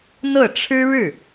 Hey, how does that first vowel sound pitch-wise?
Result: falling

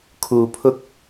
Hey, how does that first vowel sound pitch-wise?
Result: low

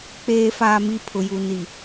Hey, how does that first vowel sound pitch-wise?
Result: low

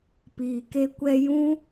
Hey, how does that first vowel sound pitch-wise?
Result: low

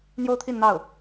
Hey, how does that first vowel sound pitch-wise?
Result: high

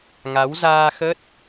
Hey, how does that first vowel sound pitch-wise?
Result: rising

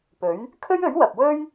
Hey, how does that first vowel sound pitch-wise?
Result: rising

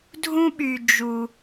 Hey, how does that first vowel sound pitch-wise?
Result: high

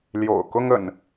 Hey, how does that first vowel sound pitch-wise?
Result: low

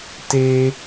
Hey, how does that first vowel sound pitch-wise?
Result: high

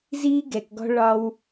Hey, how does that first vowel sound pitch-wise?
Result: high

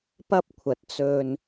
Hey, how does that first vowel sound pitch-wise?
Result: high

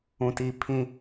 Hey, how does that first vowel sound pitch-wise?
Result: low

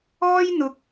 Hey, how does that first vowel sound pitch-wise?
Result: high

